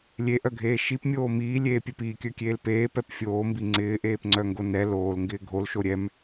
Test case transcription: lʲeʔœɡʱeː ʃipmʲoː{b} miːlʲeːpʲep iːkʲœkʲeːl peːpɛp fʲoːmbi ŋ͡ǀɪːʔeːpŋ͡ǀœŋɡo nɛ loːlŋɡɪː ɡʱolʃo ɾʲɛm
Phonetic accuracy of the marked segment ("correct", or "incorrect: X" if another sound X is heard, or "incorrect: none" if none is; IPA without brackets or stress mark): incorrect: none